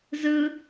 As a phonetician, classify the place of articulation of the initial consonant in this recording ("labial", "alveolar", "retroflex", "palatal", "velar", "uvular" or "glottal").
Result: alveolar